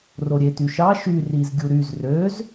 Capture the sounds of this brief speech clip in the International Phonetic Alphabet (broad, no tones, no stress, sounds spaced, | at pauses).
r o ɾʲ e t y ʃ ɑ ʃ y r i z ɡʲ u ɾ y z r ø z